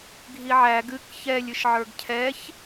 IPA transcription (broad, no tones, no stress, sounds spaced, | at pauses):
ɡʱ i ʕ æ ɡ ɨ k ç ɛ lʲ ɨ ʃ ʕ ə˞ ɡ cʰ ɛ ç